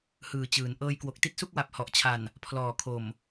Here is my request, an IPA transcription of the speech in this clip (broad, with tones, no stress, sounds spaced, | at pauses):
h ɯː˨˩ t͡ɕ ɯː˩˦ n ʔ ɤː˧ j k w o˨˩ k̚ t i˥˩ t̚ s u˥˩ k̚ w a˨˩ p̚ h ɔ˨˩ ʔ t͡ɕʰ a˨˩ n | pʰ l ɔː˨˩ kʰ o˨˩ m